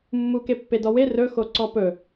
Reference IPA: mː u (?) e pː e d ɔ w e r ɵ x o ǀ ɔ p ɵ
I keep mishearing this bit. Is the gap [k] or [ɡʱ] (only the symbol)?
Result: k